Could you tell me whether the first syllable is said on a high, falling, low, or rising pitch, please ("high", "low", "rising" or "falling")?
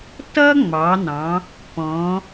high